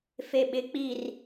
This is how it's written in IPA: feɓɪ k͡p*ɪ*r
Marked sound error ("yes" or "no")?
yes